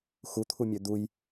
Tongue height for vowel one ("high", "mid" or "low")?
high